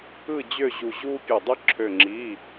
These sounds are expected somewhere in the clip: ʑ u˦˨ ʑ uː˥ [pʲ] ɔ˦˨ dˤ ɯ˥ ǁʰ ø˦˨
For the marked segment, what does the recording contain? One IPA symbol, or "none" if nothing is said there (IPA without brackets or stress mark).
pʲ